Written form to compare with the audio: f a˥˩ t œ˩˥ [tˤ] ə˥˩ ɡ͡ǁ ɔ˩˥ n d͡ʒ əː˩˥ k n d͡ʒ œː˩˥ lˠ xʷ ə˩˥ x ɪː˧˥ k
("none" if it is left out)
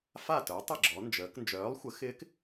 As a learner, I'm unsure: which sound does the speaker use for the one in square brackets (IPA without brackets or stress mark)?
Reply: tˤ